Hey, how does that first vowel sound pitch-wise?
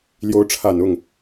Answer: rising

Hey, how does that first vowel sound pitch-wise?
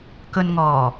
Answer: low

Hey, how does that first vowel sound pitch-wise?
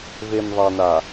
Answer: low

